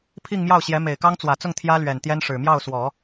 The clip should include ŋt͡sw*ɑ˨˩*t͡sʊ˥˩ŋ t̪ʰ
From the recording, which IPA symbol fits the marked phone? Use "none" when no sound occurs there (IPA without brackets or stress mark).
ä˨˩